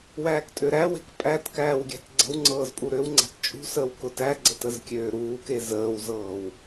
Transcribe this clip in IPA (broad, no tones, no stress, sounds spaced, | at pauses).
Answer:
w æː k tʼ ø ɾ æ w e̤ k pʼ æ t k æː w ɡʲ æ̤ t ɡ͡ǀ ə̤ w ŋ͡ǀ ɤː z pʼ u ɾ ø w ŋ͡ǀ æ̤ t t͡ʃʼ ṳ s əː w k ʊ t æ ɡ͡ǀ ə t ə z kʲ øː ɾ uː k e z əː w z ɤː w